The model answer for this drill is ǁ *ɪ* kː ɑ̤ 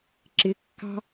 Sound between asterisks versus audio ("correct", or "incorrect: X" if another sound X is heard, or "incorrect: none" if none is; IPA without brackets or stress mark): correct